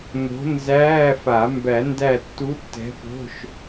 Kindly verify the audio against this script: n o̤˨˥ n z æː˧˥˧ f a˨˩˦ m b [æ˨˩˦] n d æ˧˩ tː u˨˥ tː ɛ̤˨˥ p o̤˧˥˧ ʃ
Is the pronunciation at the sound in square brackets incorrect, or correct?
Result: correct